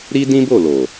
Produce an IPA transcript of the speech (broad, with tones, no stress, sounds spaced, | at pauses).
ɾ i˦ d ĩ˦ b o˦˨ l o˨